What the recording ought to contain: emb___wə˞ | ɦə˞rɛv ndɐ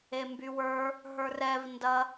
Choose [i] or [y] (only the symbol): y